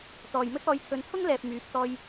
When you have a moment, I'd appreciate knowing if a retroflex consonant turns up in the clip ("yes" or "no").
no